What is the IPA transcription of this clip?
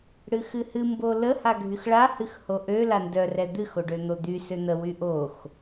ɽ ɨ x ɨ h ɨ m b o l ə h a ɡʱ y x ɭ a h ɨ x h o ʔ ø l a n d œ r ɛ d̪ ɨ x o ɖ ø n̪ o d̪ y s ø n̪ ə w y ʔ o x

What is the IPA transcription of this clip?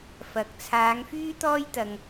f ɐ˨ k̚ t͡sʰ aː˨˧ ŋ f yː˥ t̪ ɔː˥ j t̪ ɐ˨ ŋ

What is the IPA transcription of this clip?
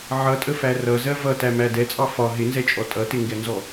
ʕ ʌ tʼ ə f æ r ʌ z ɜ v ʌ t æ m æ d ɛ t͡sʼ ɑ f ɒ ɦ ɪ n z ɛ t͡ʃʼ ɔ tʼ ʌ t ɪ ŋ ɡ ɛ n z ɔ

